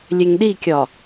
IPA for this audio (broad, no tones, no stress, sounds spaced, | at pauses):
lʲ e ŋ ɗ i kʲ ɒ